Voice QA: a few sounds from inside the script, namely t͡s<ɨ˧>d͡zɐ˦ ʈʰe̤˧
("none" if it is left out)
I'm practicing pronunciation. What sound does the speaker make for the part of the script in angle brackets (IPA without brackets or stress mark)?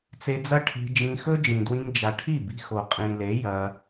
e˧